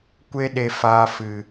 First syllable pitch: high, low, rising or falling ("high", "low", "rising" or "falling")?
high